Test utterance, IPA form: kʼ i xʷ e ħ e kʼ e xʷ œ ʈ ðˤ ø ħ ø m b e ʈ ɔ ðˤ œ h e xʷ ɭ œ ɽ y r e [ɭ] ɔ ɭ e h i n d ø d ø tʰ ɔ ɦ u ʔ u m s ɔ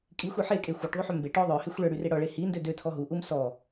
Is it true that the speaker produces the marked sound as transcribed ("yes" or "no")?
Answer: no